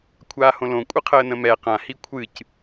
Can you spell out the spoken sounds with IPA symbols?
kʷʰaːhõlõ kʷʼɨqʰəːnə̃mɛ qã hikʷʰɨc

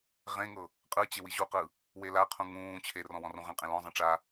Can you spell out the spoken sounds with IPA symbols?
ʁẽŋɤ | qʼɯt͡ɕe wiʑuqɯ | welaqʰũ ŋũː t͡ɕʰerɔ̃ wɔ̃rũʁẽqʼẽ lɔ̃zˤĩ ʈ͡ʂa

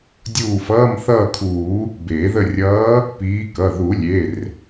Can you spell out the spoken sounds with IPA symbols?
dʲuː˦˨fʌː˧˥˧m θʌː˦˨kʰuː˨˩˦ | beː˨˩˦ðə˦˨ rʲʌː˨˦ | piː˨˦kʌ˩˧˩ ðu˨˩˦lʲe˩˧˩r

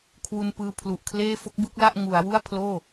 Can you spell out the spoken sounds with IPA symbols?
kʰwu˧npɯː˧pʰlu˨˩ʔkʰleː˥˩ fo˦˥k̚bɯ˥˩k̚ la˥˩ʔ ŋu˩˦a̯wu˥˩a̯pʰloː˥˩

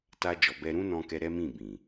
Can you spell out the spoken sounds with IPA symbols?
ta˧d͡ʒɔ˨ bɛ˧ɾũ˦nɔ̃˧kɛ˧ ɾɛ˦mĩ˦˨bĩ˨

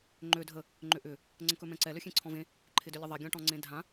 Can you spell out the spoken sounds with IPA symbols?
ŋ͡ǃø dʱə | ŋ͡ǃʏʔʏ | ŋ͡ǀə̃kɵmɛ̃ǀɛ løxʲẽǀʰɔ̃vẽ | ǃʰɪdʏlʲəðˤe ɡʲɔ̃ʈɔ̃ŋ͡ǀẽdʱã

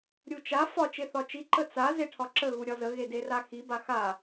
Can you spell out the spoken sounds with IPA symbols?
ɾʲut͡ʃa fɒ t͡ʃeθɒt͡ʃi ǃət͡sa zeʈʰɒǁə ɣuɾʲɒzə ɣederaxi baxa

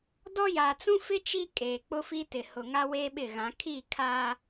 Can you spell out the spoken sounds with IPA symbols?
dɔ˦ ja˨t͡sũ˦fɪ˦ t͡ʃi˦ kʼeː˨k͡pʊ˦fi˦ tɪ˨hʊ˨ŋa˦ weː˦ɓɪ˦˨ɣã˨˦ kʰi˦˨ kʰa˦

